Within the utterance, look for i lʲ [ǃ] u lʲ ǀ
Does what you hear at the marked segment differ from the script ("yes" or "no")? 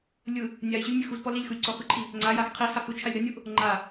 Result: yes